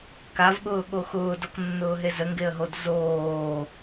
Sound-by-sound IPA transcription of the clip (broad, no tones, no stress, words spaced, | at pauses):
kavɠʊːɠo xʊːdɔknːʊːɦe zəŋɡeə̯ɦod zoː